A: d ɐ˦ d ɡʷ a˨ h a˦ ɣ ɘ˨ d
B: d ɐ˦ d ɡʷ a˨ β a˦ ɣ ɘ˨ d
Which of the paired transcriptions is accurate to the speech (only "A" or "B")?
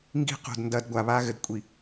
B